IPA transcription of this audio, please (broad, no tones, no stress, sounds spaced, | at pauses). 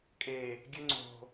kʼ e | ɡʲ ø ŋ͡ǀ o̤